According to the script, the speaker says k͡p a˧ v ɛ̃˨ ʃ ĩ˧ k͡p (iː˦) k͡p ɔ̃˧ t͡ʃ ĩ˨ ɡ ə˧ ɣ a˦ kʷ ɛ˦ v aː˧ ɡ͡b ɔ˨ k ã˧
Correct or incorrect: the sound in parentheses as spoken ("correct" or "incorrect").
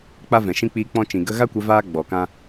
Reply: incorrect